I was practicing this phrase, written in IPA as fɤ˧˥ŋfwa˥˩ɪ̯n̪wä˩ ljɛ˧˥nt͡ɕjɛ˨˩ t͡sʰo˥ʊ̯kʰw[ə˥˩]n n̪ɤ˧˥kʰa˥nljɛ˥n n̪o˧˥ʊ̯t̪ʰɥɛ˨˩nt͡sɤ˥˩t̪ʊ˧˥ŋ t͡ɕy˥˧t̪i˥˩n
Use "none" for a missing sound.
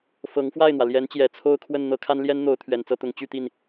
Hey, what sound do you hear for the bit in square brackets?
ə˥˩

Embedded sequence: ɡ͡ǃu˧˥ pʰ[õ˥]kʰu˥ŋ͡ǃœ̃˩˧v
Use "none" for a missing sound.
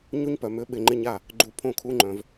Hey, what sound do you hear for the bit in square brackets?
õ˥˩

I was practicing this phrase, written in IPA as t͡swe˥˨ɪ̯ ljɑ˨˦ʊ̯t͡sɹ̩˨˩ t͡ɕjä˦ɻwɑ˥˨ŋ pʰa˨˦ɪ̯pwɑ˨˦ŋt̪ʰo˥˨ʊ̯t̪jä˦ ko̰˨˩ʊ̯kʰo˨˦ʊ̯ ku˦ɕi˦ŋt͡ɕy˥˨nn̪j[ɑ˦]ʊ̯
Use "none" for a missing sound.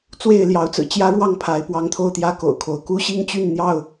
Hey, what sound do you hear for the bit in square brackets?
ɑ˥˨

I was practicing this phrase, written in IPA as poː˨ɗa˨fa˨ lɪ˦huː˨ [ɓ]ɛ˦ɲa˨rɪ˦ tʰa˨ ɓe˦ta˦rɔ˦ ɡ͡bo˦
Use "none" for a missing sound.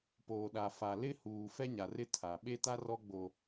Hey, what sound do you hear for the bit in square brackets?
f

